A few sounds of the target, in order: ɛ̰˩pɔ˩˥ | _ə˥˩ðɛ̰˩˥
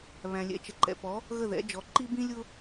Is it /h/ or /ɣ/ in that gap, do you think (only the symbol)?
ɣ